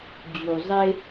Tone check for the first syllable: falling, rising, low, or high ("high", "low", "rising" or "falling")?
low